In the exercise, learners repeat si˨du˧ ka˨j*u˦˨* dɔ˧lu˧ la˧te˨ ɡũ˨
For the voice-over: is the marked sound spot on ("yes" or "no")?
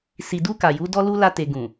no